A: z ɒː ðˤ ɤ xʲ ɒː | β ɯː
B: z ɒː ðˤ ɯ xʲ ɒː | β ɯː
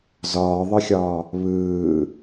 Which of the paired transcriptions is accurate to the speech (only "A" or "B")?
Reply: B